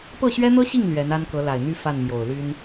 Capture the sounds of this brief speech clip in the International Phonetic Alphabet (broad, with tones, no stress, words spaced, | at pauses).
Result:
pɤ˥˩ɕɥɛ˥n̪ɤ˥ɕi˥˩ŋ lɥɛ˧˥n a˥nkɤ˧˥ la˨˩ɪ̯n̪y˥ fa˥˩nmjo˨˩ʊ̯ly˥n